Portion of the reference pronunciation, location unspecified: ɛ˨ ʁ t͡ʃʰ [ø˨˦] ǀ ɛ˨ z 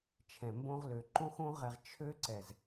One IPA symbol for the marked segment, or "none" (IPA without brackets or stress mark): ø˦